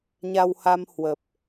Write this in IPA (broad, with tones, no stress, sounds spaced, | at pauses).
ɲ a˧ w h a˧ m h w ə˨˩ p̚